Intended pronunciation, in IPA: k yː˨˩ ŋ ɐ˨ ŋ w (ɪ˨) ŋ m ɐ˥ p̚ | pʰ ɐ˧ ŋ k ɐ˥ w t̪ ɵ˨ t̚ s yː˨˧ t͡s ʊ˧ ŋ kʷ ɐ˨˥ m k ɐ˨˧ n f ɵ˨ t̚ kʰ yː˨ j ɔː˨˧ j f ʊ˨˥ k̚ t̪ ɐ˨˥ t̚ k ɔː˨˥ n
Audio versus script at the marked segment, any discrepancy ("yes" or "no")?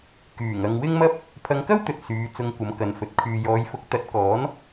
yes